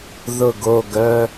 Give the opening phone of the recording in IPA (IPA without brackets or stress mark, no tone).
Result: ð